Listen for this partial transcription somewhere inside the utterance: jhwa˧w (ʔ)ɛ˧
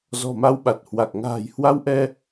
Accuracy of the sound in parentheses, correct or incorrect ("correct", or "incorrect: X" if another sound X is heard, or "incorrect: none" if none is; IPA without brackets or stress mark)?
correct